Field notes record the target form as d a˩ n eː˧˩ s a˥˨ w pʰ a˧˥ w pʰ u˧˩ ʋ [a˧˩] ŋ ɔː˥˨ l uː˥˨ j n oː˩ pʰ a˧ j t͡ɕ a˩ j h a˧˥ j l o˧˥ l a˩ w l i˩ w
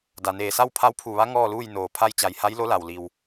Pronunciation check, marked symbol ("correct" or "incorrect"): incorrect